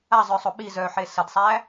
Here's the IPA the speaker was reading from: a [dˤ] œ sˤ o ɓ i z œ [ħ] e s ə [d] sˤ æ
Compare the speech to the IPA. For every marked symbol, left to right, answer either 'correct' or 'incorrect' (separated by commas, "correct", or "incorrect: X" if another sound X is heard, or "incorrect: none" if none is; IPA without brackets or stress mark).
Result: incorrect: zˤ, correct, correct